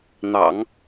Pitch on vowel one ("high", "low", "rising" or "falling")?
low